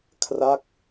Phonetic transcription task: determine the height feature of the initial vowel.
low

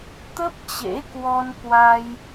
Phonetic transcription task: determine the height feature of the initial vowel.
mid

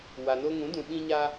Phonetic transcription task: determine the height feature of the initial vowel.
low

